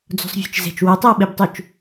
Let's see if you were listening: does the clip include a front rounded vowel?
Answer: yes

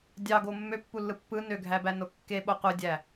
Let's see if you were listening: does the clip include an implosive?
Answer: yes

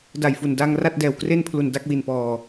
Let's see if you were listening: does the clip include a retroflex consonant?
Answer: no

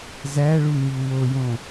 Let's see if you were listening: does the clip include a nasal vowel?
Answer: yes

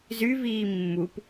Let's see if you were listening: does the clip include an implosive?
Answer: no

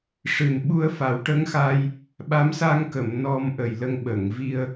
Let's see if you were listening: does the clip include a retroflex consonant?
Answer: yes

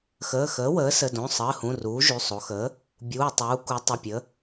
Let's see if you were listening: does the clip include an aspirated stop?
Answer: no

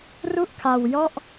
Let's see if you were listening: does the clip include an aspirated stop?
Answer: yes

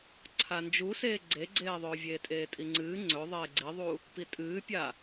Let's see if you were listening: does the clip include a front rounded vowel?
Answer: no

